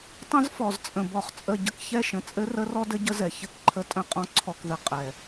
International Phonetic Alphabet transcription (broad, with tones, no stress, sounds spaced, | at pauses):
tˤ ə̃˦ z f ɔ˨ z t͡sʼ ə̃˨ b ɔ˨ χ t͡sʼ ə˨ ɟ ə˦ k ç ɛ˦ ʃ ə̃˨ t͡sʼ ɘ˦ r ə˦ r ɔ˦ d ɘ˦ ɟ ə˦ z ɛ˨ ç ɘ˦ k ǃʰ ə˦ tʼ ə̃˦˨ qʼ ɔ̃˦ ǀʰ ɔ˨ k ð ɘ˨ qʼ ɛ˨